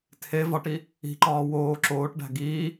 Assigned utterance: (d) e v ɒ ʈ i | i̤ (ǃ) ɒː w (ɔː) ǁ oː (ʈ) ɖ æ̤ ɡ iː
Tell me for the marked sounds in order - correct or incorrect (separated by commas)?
incorrect, correct, incorrect, correct